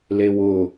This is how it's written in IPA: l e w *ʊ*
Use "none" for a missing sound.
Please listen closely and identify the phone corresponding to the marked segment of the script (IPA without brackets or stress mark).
ʊ